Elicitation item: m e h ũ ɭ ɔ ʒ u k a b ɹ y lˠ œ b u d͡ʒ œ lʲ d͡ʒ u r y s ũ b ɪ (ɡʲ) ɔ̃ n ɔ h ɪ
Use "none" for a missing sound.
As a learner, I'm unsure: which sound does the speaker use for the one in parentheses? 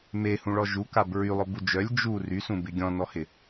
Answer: ɡʲ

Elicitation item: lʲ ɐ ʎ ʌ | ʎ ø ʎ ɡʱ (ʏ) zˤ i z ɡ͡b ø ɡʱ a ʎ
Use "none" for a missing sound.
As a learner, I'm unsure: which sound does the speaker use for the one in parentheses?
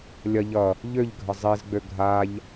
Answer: ə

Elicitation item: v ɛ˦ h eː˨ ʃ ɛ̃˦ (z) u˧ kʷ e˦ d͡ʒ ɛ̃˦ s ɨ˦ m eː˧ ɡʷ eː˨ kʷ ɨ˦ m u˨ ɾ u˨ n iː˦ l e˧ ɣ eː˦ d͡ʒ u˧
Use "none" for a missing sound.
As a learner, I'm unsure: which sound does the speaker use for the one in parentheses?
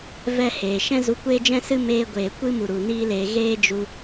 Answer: z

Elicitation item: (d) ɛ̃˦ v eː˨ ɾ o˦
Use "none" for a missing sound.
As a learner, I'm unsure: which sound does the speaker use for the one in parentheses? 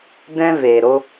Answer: d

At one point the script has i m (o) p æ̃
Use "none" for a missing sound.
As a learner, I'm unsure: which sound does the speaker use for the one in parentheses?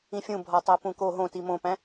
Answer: õ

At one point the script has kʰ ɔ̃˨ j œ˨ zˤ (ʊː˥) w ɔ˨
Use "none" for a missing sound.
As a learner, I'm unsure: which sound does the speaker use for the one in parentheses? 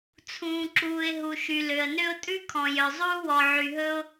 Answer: uː˥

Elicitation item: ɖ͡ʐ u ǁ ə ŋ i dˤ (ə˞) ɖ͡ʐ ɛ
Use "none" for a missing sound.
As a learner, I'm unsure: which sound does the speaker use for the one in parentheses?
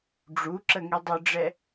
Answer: ə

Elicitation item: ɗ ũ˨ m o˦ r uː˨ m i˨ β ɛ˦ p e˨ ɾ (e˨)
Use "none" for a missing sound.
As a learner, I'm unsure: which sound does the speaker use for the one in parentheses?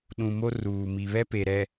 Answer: ɛ˨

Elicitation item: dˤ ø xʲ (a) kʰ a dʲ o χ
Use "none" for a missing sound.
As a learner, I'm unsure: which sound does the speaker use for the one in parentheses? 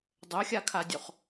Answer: a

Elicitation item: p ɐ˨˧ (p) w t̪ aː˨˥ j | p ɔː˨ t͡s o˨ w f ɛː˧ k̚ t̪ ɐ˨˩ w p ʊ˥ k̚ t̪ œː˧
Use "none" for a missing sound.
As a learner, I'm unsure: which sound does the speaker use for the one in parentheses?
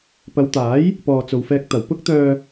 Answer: none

